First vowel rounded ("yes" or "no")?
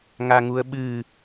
no